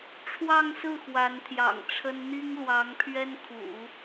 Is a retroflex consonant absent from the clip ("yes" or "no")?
no